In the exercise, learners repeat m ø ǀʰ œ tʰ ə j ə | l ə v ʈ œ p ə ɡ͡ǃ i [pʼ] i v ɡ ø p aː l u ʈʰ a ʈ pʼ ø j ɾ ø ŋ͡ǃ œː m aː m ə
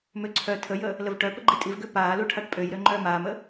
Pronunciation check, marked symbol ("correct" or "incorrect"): incorrect